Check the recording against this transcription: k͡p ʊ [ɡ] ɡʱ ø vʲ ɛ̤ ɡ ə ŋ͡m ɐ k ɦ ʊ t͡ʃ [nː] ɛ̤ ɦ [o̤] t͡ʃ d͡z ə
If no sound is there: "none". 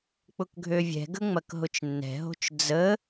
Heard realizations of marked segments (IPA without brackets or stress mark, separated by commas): k, nː, o̤